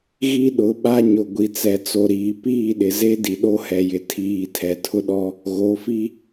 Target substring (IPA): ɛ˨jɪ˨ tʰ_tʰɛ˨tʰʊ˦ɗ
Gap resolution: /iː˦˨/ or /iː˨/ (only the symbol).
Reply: iː˨